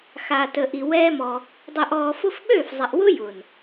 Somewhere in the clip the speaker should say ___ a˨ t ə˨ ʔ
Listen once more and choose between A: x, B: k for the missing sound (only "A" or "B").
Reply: A